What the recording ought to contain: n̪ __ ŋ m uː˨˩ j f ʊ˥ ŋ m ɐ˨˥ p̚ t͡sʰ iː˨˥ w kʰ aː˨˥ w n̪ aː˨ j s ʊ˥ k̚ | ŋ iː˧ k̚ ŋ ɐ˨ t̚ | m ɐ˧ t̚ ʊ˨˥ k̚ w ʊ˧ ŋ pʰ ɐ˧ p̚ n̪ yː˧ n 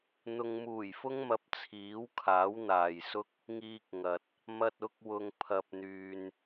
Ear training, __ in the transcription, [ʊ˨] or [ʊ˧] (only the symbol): ʊ˨